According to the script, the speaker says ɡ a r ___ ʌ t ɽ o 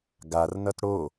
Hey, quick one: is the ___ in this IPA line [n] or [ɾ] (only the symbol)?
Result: n